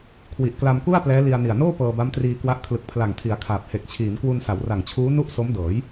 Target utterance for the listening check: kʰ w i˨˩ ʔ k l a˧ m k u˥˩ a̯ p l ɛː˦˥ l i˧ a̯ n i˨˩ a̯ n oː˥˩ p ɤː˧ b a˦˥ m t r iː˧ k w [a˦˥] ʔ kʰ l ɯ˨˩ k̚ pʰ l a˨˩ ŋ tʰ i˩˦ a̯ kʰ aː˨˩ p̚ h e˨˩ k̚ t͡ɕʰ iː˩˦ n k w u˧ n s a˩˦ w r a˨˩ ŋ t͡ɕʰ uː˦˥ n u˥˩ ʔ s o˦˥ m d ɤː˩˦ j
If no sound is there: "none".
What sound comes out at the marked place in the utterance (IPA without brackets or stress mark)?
a˦˥